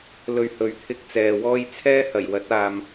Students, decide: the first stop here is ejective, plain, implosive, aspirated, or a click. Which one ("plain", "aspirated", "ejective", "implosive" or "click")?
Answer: aspirated